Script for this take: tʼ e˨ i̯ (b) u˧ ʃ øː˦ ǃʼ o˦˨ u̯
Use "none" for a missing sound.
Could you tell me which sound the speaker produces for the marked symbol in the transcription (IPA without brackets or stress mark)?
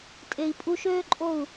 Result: pʼ